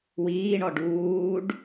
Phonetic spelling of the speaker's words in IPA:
w iː ɳ ɔ ɖ uː ɖ

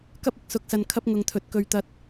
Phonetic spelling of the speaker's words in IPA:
k ɐ˥ p̚ ɪ˨ k̚ s ʊ˨˥ k̚ s ɐ˨ n kʰ ɐ˥ p̚ ŋ ʊ˨ ŋ t̪ʰ ɵ˨ t̚ k ɵ˨ ɥ t̪ ɐ˧ t̚

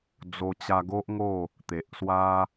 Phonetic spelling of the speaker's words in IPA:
d͡z o˧ t͡ɕ a˧ ɡ o˦ ʔ ŋ o˥˧ | t̪ e˨ ʔ s w a˦

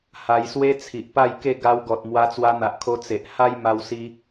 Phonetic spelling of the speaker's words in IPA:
h a˧ j s w e˦ t͡sʰ i˨ ʔ p a˥˧ j k e˥˧ ɡ a˧ w ɡ ɔ˨ t̚ m w a˧ t͡s w a˧ n̪ a˨ ʔ kʰ o˧ t͡s e˨ ʔ h a˦ j m a˧ w s i˧

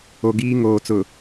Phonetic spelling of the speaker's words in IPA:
o˨ ɡ iː˦ ŋ oː˨ t͡s ʊ˨

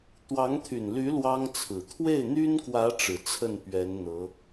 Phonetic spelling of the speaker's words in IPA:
t̪ w ɑ˧˥ ŋ t̪ʰ y˨˩ n l y˧˥ l w ɑ˥ ŋ t͡sʰ ɹ̩˨˩ t̪ʰ w e˥˩ ɪ̯ n̪ y˥ n k w ä˧˥ ʈ͡ʂ ɻ̩˨˩ t͡sʰ ə˥˩ n p ɥ ɛ˧˥ n n̪ ɤ˧˥

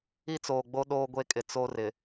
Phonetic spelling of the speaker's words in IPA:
i˦ t͡s oː˨ ɡ͡b o˦ ɗ oː˦ ɡʷ e˦ kʼ ɪ˨ t͡s o˦ r ɪ˨

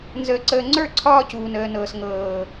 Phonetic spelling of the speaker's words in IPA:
n z əː˧ ǀ əː˧ ŋ͡ǀ ə˞˦˨ ǀʰ ɒː˦ c uː˨ n əː˨ n ɤː˨ s ŋ ɤː˨

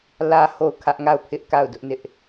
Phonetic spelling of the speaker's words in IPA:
l ä˨ h o˦˨ ʊ̯ kʰ ä˦ ʔ ŋ a˦˨ ʊ̯ pʰ ɪ˦ ʔ k a˦˨ ʊ̯ d ʊ˦ ʔ n ɪ˦ ʔ

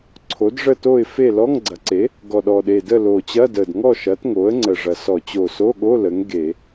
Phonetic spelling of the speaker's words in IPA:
ǀʰ o˩˥ d ʐ ə˥˨ t o˥˨ ɪ̯ f e˥˨ l ɔ˧˥˧ ŋ ɡ͡ǀ ɐ˩˥ ǀ e˩˥ | ɡ ɔ˨˩ ɗ ɔ˨˩ ɗ e˨˩ d ə˥˨ l o˨˩ t͡ɕ ɐ˧˥˧ d ə˨˩ d ŋ ɔ˥˨ ʃ ɐ˩˥ t ŋ o˩˥ ə̯ ŋ͡ǀ ə˨˩ ʐ ɐ˨˩ s ɔ˧˩˧ t͡ɕ o˨˩ s o˧˥˧ ɠ o˧˥˧ l ə˩˥ ŋ ɡ e˧˩˧

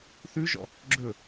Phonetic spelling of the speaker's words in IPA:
θ ʉ ʒ ɔ̰ | ɡ͡ǁ ɵ

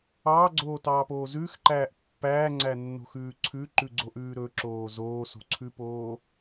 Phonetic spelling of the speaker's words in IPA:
ɑː ɡ͡ǀ oː t ɑː p oː z ʉː x ǃ æː ʔ pː æː ŋ͡ǀ æ nː o̤ x ʉː ǀʰ ʉ ǃ ʉ ɡ͡ǀ o ʔ ʉː ɾ ɵ ǁ oː z oː s o̤ ǀʰ ʉ p oː

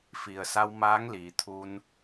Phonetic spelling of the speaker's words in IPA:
f i˩ ə̯ s a˧ w m aː˧˥ ŋ l iː˩˧ t̪ʰ u˧ n

